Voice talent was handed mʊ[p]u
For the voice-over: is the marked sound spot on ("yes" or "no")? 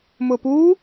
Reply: yes